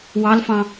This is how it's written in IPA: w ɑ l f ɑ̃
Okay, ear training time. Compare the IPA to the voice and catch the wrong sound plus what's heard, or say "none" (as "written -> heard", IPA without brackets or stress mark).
none